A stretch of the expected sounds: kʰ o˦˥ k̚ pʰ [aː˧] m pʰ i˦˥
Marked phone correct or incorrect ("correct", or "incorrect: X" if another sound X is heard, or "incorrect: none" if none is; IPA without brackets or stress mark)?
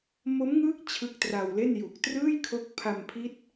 incorrect: a˧